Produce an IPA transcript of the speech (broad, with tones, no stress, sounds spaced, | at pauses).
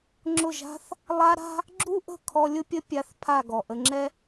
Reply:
ŋ͡ǁ ʊ˦˨ ʒ a̤˦ θ | lˠ a˦ ɾ a̤˦ | ɡ͡ǁ u˦ ʔ ə̤˦˨ kʰ ɔ˧ lʲ ʊ˦ pʲ ə˦ pʲ a˧ θ pʰ a˦˨ ɡ ɔ˨ ʔ ə˧ ŋ͡ǁ ɛ˦